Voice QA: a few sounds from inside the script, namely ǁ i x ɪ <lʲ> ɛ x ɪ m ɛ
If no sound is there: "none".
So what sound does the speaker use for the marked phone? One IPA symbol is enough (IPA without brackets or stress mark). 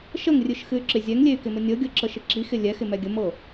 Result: lʲ